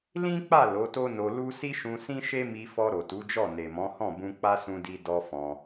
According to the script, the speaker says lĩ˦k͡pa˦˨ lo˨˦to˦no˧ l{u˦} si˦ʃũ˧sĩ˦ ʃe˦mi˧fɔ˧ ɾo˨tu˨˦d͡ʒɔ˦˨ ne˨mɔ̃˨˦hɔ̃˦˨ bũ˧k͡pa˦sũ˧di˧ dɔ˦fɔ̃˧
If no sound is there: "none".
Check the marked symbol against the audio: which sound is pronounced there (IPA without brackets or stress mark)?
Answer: u˦